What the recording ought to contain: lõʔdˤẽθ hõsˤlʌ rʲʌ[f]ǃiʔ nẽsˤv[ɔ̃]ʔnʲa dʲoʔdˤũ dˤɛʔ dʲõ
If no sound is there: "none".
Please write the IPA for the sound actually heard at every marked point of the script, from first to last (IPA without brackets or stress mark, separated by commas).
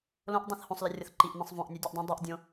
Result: θ, õ